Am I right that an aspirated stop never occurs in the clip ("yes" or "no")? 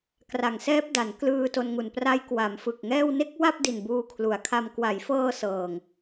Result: no